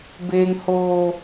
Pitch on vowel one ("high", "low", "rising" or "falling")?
high